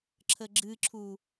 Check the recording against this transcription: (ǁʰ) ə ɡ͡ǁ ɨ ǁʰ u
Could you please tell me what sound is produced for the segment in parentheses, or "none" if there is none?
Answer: ǁʰ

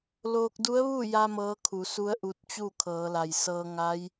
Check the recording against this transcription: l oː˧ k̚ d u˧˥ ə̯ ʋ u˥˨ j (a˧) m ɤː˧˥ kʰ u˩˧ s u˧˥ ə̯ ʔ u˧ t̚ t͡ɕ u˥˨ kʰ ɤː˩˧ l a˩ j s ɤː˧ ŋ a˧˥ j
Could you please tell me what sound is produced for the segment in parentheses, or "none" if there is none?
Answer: a˧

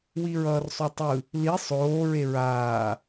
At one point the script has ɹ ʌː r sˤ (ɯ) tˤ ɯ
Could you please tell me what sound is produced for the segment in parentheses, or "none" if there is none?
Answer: u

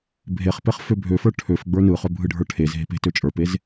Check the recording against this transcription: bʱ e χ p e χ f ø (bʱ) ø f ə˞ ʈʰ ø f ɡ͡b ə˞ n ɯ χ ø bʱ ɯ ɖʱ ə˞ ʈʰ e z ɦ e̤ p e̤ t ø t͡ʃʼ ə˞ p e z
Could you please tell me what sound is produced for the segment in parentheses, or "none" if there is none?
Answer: bʱ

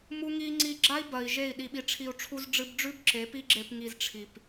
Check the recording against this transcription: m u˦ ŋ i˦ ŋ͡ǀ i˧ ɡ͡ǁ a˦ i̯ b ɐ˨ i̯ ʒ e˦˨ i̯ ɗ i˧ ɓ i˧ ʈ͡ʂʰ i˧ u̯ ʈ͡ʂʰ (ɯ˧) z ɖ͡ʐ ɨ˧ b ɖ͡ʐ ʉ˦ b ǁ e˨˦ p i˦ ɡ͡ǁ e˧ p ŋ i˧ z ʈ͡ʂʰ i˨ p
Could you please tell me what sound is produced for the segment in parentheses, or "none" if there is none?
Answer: u˧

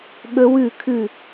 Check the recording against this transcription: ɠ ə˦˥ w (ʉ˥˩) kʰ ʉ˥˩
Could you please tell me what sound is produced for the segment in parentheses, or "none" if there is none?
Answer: ʉ˥˩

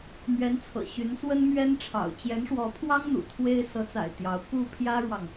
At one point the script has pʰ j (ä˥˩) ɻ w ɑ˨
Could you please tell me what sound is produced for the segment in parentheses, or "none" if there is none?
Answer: ä˥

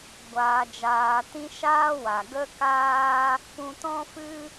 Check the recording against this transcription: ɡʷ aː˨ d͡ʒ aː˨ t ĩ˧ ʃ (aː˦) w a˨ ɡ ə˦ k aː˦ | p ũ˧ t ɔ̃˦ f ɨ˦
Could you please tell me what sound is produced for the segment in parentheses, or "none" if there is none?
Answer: aː˦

